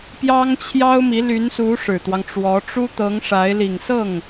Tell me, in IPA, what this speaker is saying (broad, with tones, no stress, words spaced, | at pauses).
pjɑ˥ŋt͡ɕʰjɑ˥ʊ̯mi˧˥ ly˧˥nsu˧˥ ʂɻ̩˨˩t̪wɑ˦ŋʈ͡ʂwɔ˧˥ ʈ͡ʂu˥t̪ɤ˧˥ŋʂa˧˥ɪ̯ li˨˩ŋsɤ˥˩ŋ